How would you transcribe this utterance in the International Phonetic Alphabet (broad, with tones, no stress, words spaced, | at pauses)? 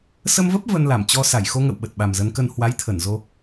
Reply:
sə˧mvə˦˥p̚ və˧nla˧˩m t͡ɕɔ˧ sa˧˩jxo˧ŋə̰˧˨w ɓə˨˩t̚ɓa˨˩mzə˨˦nkə˧n hwa˨˦jt̪ʰə˧˩n zo˧